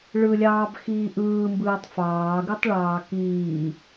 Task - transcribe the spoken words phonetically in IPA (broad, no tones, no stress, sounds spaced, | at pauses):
ɭ ɯ lʲ ɑː b x iː ʔ ɯː m b ɯː tˤ f ɑː ɡ ɯ tˤ ɭ ɑː k iː